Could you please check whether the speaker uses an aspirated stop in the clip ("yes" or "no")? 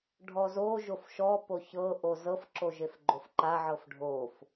no